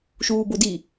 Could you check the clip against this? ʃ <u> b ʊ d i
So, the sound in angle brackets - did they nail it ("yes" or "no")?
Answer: no